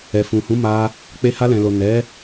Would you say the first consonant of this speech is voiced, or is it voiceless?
voiceless